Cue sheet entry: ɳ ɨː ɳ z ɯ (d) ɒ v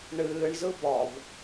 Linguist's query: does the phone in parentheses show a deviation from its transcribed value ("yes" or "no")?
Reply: yes